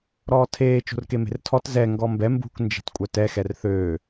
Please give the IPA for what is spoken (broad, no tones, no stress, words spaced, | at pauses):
ɾɔːtʰeː t͡ʃo̤rkeme̤rtʰɔt zɛ ŋɡɔmbɛ mbṳk nd͡ʒe̤tkʷʼœtɛ xɛrθøː